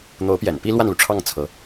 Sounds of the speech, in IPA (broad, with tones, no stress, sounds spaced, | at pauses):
n̪ o˧˥ ʊ̯ p j ɛ̰˨˩ n p i˥ l w a˥˩ n l u˩ ʈ͡ʂʰ ɑ˥˩ ŋ t͡sʰ ɤ˧˥